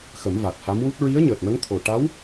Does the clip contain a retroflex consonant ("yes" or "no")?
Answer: yes